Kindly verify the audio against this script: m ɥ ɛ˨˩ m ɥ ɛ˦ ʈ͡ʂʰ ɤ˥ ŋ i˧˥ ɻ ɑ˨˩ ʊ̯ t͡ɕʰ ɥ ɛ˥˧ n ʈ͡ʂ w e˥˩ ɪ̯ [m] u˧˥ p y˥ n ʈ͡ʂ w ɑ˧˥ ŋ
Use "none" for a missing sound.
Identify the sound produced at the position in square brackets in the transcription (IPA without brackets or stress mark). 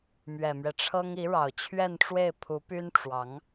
pʰ